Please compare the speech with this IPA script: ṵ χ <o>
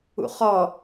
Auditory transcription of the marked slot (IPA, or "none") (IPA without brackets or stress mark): ɔ